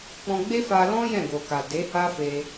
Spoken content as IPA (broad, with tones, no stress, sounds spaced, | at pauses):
k͡p ɔ̃˧ ɡ͡b e˦ f a˧ l ɔ̃˦ j ɛ̃˦˨ ɡ o˨ k a˨ d e˨˦ h a˦ f e˧